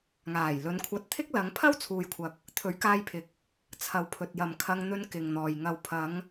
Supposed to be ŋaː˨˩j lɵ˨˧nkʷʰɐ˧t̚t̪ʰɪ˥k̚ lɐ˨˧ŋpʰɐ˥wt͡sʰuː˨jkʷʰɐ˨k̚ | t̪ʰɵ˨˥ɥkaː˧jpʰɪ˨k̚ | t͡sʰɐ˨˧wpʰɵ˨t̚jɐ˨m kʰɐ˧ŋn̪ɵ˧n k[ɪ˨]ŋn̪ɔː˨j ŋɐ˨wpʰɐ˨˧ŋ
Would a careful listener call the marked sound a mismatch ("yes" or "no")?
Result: no